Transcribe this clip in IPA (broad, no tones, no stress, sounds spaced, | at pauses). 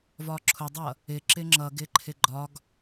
v ɒ ǁʰ ʊ dˤ ʌ | ɪ ǁ ɪ ŋ͡ǁ ʌ ɡ ɪ ǃʰ ɪ ɡ͡ǃ ɒ ɡ